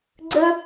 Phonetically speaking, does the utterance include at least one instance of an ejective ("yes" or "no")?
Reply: no